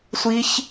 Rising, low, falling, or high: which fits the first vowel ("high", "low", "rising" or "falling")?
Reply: high